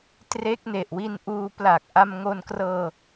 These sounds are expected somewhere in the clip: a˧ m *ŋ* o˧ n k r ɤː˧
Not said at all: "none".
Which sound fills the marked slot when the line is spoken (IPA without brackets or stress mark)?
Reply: ŋ